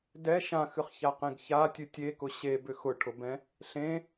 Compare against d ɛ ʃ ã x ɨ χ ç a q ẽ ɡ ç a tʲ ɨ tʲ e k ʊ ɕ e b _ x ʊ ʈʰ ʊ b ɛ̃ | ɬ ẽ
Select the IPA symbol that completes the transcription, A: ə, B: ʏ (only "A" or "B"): B